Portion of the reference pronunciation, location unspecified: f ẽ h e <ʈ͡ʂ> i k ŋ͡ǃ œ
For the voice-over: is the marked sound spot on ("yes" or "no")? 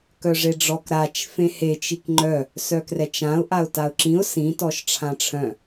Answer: no